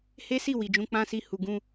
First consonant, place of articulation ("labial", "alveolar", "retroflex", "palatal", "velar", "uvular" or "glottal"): glottal